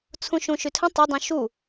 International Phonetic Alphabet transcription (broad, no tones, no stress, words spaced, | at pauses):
t͡sʰũʃũʃytʰə̃ tˤə dˤũʃu